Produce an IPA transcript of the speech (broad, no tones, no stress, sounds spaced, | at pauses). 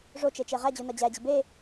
ʐ o t͡ʃ e t͡ʃ e ʁ æ d͡ʑ u n ɒ d͡ʑ æ d͡ʑ i b e